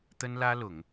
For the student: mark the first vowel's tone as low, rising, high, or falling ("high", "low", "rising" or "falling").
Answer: high